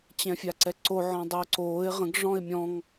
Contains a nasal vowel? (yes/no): yes